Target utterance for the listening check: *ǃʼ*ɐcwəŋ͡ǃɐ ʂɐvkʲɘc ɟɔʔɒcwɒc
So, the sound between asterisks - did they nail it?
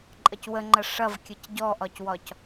yes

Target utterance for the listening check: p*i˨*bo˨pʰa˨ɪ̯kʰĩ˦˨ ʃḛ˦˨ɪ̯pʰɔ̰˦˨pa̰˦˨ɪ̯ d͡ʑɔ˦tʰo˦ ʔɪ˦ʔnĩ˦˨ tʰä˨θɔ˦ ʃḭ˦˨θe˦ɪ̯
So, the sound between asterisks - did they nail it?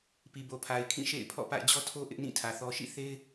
yes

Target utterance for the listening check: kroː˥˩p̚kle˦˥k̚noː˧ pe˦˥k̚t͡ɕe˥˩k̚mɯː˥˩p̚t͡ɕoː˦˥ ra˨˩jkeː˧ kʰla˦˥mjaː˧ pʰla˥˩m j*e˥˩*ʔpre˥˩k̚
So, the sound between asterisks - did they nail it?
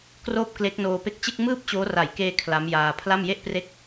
yes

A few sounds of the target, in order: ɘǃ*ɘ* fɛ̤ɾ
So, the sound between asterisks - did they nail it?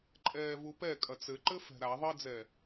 yes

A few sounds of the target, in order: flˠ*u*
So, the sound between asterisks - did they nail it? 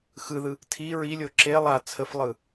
no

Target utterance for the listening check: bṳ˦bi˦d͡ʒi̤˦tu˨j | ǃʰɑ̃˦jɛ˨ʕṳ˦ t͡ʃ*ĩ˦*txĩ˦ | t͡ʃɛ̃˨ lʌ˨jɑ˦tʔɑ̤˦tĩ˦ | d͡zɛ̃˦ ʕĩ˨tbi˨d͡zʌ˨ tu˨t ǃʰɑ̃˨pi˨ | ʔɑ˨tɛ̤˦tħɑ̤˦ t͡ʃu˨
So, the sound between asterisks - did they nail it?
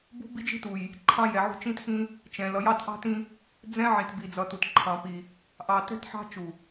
yes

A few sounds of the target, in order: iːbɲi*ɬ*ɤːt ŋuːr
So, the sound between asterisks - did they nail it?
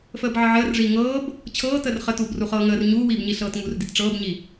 yes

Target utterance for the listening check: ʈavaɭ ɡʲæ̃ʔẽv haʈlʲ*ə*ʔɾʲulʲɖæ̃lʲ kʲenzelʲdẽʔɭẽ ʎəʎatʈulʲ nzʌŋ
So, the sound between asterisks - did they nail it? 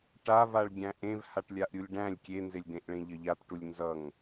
no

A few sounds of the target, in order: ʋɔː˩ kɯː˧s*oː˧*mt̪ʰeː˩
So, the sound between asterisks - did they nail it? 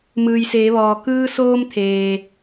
yes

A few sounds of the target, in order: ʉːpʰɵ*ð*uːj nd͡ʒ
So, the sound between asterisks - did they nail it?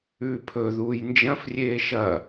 yes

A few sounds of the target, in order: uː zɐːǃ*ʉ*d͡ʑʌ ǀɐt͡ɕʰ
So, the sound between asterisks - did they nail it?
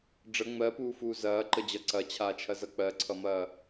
no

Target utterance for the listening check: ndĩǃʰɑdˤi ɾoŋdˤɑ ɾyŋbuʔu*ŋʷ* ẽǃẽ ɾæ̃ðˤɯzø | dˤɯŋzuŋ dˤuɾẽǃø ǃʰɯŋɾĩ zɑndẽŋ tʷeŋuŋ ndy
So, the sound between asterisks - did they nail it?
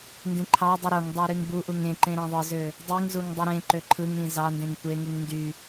no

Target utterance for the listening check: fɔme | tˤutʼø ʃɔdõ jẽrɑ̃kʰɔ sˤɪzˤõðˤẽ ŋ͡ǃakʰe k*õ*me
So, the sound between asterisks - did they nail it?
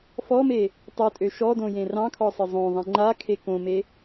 yes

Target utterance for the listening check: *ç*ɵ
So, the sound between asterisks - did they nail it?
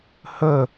no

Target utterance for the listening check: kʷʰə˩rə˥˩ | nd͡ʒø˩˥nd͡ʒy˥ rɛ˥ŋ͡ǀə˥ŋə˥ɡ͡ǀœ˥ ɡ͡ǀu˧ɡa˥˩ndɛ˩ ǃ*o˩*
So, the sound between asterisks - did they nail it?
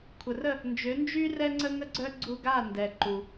no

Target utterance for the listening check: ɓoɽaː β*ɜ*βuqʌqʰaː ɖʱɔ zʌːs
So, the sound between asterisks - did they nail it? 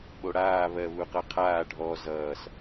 yes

